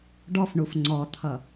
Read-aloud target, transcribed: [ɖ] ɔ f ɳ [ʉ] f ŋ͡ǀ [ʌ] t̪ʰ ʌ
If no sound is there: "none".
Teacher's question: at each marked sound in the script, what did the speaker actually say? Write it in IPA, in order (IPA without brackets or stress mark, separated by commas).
ɖ, u, ɔ